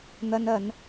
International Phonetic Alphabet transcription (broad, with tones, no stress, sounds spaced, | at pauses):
n̪ ɐ˧ n ɐ˨˧ n